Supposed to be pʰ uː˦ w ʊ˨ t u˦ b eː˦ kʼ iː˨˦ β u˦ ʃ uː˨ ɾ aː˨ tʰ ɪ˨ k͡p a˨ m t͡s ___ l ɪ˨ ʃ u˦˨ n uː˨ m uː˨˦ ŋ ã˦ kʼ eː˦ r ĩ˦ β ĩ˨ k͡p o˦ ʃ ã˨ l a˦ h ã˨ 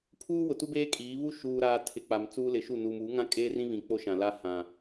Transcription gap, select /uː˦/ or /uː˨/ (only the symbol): uː˦